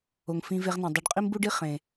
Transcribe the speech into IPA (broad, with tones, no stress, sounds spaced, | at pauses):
o˨ ŋ f ĩ˧ v e˧ ʁ n ẽ˨ dˤ o˨ ɖ qʼ i˦ m b u˦ ɖ i˦ χ ẽ˨